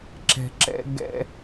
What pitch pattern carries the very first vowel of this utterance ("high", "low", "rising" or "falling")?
low